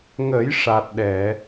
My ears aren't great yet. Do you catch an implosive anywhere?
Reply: yes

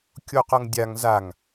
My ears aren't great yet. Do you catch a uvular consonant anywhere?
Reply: yes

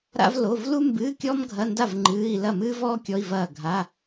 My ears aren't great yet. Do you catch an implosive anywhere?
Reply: no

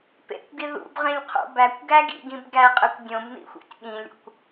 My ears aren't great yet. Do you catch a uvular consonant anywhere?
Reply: yes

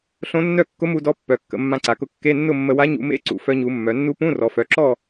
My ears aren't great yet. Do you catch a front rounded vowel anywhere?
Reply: yes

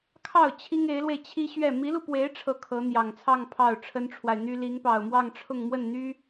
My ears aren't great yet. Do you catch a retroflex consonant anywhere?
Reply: yes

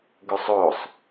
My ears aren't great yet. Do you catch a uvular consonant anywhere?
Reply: no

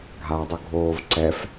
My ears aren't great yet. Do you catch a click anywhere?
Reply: yes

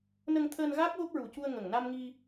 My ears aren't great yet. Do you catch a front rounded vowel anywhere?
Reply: no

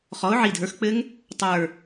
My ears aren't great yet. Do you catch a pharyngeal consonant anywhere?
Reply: yes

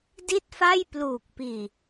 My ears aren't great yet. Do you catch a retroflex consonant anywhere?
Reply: no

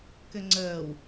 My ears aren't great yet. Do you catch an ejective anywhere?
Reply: no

